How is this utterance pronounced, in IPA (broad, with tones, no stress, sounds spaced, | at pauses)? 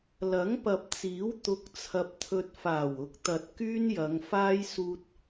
l ɐ˨˥ ŋ p ɐ˨ p̚ t͡s iː˨˥ w t̪ ʊ˧ k̚ t͡sʰ ɐ˧ p̚ t̪ʰ ɵ˧ t̚ f aː˨˩ w ʊ˨˥ k̚ t̪ ɐ˨ t̚ k yː˥ n j ɐ˨˧ ŋ f aː˥ j s uː˧ t̚